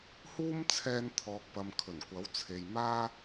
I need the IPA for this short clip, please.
h uː˥ m t͡sʰ ɛː˧ n t̪ʰ ɔː˨ k̚ p ɐ˨ m kʰ ɵ˨˩ n kʷ ɐ˨˥ w t͡sʰ e˨ j m aː˥

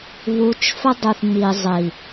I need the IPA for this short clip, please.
β u˨ t͡ʃ f ə˦ dˤ u˨ θ m i˨ zˤ i˨

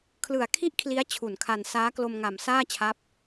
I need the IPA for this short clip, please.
kʰ l ɯ˨˩ a̯ kʰ i˥˩ ʔ kʰ l i˦˥ a̯ t͡ɕʰ u˨˩ n kʰ a˧ n s aː˦˥ k l o˧ m ŋ a˨˩ m s aː˥˩ t͡ɕʰ a˦˥ p̚

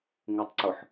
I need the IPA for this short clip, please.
ŋ u tˤ ǀ ʊ ħ

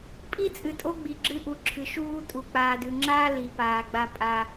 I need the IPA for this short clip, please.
pʼ i˦ t͡sʼ ɨ˨ tʼ o˦ ɡ͡b i˨ ɡ͡ǁ ɨ˦ ʔ u˨ ǁʰ ɨ˨ ʃ uː˦ tʼ u˨ k͡p aː˨ d ʉ˨ ŋ͡ǁ aː˦ l i˨˦ p aː˨ ɡ͡b a˦ pʼ a˦

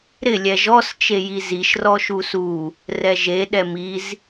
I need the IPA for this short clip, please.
ɾ ɪ lʲ ɛ ʒ ɔ s t͡ʃ e j i z i ʃ r ɔ ʃ u s u | r ɛ ʒ e ɗ ɛ m i z

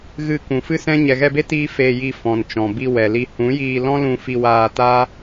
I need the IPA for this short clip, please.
ɣ ɨ˨ k ũ˨ f ɨ˦ s ɛ̃˦ ɲ ɛ˨ ɣ ɛ˧ b e˦ t iː˧ f e˧ j i˧ f ɔ̃˨ n t͡ʃ ɔ̃˨ b i˧ w ɛ˨ l i˧ h ũ˨˦ j iː˧ l ɔ̃˦ l ũ˧ f i˧ w aː˧ t aː˦

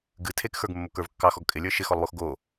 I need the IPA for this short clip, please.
ɡ ɨ tʰ e k x ə˞ ɡ mː o k ə˞ v kː ɑ x ɔ ɡ kʼ ɪ lʲ ə˞ ʃ ɪ x ɔ lˠ w o x ɡ o

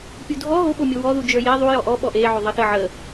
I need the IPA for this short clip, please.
pʲ u dʱ ɔ ɦ o ɓ o mʲ o w ɔ ð u d͡ʒ ə˞ j e ðˤ u j ɔ ʔ ɔ ɓ ɔ ʔ e ʕ o ðˤ ə θ ə ʕ ə

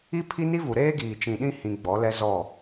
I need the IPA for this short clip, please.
i˦ pʰ i˦ n i˦ v u˨ ɾ eː˦ ɡ iː˨ t͡ʃ ĩ˨ ɗ ĩ˦ h ĩ˨ ɡ͡b ɔ˨˦ l ɛ˦ z ɔ˦˨

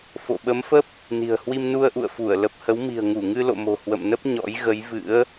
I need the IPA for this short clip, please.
f o̰˧˨ ɓ ə˨˦ m f ə˦˥ p̚ | n i̤˨˩ ə̯ h w i˧ m n u˧ ə̯ ʔ ṵ˧˨ ə̯ f u˧˩ ə̯ l ə˨˩ p̚ h ə˨˦ w m i̤˨˩ ə̯ ŋ u˧˩ ŋ ɨ˧ l o̰˧˨ m o̤˨˩ h w ə̰˧˨ m n ə˦˥ p̚ ɲ ɔ̰˧˥ j ɣ ə˨˦ j v ɨ̰˧˥ ə̯

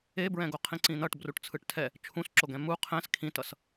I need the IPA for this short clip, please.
e b ɹ ɛ̃ ɡ o qʰ ĩ ǀ ĩ n̪ ʌ ʈ b r u ʈ t͡sʰ ɯ ʈ tʰ ɛ | t͡ʃʰ ũ s ǁ o ɡ ɛ̃ m u qʰ ɛ̃ s kʰ ĩ t ʌ s

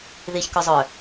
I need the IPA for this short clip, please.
ð i ç k œ zˤ œ

